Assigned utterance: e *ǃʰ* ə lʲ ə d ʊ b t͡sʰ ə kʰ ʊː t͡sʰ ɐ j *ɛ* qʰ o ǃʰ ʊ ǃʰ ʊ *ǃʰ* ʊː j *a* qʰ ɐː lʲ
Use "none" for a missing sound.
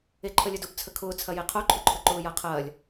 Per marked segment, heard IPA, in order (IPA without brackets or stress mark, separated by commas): ǃʰ, e, ǃ, a